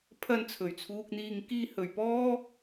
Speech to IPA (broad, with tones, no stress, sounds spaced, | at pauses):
pʰ ɐ˧ n t͡sʰ ɵ˨˩ ɥ t͡sʰ uː˧ k̚ n̪ iː˧ ŋ k iː˥ h ɵ˨ ɥ p ɔː˥